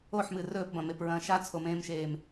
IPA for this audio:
oħmɨ rɵːpbɐ̃mepɹɐ̃ː ʃat͡sʰomẽːmʃeːm

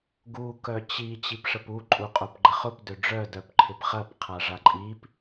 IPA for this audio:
ɡu kœt͡ɕi t͡ɕipʂəpu ǃʼuqʼopɡ͡ǃəχʊp døɖ͡ʐœ dœpǃʰɪpχɐp qʰaʐaǃʼip

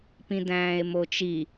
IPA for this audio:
pĩdæ̃ːe̯mot͡ʃi

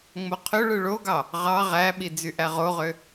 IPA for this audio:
ŋ͡moqʰøɭɯ ɭoɡɑ | ʁɑ ʁæɓi d͡zyʔæʁoʁø

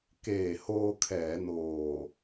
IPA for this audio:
keː˨˩hoː˧kʰɛː˩˦noː˨˩

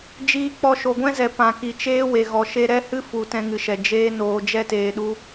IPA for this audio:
d͡ʒiː˧k͡pɔ˧ ʃo˨ɡʷɛ̃˦zɛ˨ pã˨ki˨t͡ʃeː˦ we˨ɣɔ˨ʃe˦ ɾɛ˦hɨ˦ fu˨ tɛ̃˧ŋɨ˨ʃɛ˨ d͡ʒeː˦ noː˧d͡ʒɛ˦teː˧ɗu˦

